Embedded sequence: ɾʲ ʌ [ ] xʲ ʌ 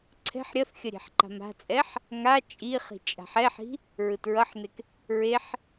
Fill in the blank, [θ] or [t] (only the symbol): θ